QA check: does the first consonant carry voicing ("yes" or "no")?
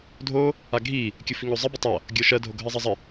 yes